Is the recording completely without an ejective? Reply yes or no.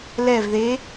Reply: yes